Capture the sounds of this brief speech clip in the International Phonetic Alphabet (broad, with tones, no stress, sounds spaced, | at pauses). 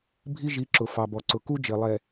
bʱ i˦ ʒ i˨˦ ǁ ʊ˨ f ɑ˨ b ɔ˨ ǀ ʊ˨ k u˦ d͡ʒ ɪ˨ lˠ ɛ˨